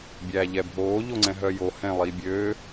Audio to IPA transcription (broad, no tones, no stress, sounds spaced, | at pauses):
bʲ æː ʎ ɛ bʱ oː ʎ o ŋ͡ǀ ɛ̃ ɦ œ j o h ɛ̃ lˠ i bʲ ø